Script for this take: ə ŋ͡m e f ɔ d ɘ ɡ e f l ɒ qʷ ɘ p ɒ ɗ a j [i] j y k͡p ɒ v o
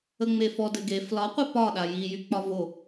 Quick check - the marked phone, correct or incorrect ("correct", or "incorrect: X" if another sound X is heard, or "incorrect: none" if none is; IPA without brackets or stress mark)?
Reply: correct